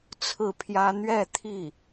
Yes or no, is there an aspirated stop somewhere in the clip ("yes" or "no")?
yes